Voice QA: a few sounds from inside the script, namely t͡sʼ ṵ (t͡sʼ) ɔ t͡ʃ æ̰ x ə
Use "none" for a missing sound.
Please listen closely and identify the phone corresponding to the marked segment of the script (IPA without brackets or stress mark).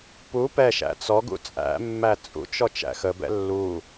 t͡ʃ